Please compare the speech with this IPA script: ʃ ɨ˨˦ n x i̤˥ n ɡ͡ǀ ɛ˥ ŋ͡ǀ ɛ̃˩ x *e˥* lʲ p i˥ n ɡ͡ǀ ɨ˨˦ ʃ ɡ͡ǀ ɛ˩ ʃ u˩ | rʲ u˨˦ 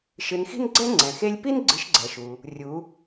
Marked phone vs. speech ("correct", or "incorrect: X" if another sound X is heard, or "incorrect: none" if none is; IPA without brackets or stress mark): correct